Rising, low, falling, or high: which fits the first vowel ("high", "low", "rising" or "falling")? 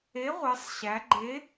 rising